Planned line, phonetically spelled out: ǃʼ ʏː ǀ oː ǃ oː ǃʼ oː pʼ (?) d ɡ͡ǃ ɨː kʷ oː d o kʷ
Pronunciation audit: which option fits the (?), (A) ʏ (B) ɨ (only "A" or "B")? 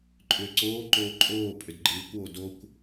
A